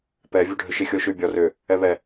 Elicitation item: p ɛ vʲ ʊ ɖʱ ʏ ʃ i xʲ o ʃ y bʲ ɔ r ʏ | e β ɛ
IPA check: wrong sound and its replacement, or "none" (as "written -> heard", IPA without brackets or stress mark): e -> ɛ